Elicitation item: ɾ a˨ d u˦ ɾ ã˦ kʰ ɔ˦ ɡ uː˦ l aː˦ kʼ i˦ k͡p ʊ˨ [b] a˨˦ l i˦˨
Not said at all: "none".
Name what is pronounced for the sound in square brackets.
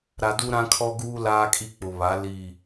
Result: β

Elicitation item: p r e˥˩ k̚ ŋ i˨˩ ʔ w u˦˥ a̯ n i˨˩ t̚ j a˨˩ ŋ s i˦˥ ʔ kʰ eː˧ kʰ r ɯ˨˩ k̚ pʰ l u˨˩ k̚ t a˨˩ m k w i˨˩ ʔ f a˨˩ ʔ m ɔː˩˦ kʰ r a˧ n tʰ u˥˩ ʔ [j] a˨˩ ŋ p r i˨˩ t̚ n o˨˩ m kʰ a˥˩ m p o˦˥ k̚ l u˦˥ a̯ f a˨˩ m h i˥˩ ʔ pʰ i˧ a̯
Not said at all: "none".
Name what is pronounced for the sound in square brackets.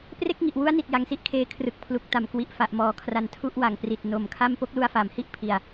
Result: w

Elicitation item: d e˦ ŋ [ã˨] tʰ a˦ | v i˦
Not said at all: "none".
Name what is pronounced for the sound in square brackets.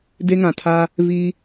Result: ã˨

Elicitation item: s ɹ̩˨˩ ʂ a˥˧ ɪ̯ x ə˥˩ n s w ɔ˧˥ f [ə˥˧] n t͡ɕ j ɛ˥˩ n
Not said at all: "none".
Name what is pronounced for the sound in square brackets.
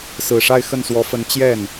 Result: ə˧˥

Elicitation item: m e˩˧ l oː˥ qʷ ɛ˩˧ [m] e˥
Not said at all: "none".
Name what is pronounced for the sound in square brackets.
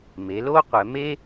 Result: m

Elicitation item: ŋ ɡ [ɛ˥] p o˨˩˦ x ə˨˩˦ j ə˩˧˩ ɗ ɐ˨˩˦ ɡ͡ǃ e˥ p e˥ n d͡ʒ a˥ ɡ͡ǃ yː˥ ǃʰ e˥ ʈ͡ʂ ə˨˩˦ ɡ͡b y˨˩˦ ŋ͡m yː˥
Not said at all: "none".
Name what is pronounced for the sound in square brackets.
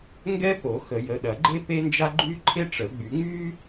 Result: ɛ˥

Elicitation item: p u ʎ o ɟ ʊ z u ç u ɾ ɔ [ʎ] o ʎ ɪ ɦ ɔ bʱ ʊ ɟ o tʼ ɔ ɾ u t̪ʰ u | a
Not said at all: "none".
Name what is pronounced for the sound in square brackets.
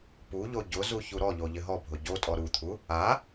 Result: ʎ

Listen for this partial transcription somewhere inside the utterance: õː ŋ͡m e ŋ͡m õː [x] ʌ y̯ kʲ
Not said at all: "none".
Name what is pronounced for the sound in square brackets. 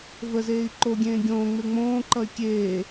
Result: ǃ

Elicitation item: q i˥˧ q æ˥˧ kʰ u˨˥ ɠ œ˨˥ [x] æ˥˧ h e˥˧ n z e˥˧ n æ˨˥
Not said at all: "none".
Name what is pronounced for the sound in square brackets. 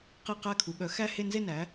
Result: x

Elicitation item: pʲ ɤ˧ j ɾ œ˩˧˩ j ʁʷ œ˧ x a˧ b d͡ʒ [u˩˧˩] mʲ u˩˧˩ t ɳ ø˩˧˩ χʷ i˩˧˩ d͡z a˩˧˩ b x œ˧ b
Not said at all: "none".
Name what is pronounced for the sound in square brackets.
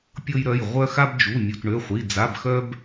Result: u˩˧˩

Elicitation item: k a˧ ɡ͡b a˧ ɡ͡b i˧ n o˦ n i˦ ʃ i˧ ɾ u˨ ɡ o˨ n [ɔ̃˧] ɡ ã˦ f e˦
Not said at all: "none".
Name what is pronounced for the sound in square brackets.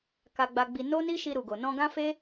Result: ɔ̃˧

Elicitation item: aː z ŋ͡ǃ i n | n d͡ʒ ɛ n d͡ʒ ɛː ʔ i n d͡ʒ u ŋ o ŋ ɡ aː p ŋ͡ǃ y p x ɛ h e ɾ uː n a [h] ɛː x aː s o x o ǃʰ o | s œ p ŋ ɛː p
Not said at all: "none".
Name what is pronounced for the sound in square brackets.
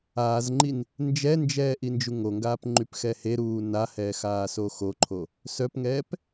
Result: h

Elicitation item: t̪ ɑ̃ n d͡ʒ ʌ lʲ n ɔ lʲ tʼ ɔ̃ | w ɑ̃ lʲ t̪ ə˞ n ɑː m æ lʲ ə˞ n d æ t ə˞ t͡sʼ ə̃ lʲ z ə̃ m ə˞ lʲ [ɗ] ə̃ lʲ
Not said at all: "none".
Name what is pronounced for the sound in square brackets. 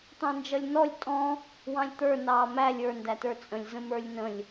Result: n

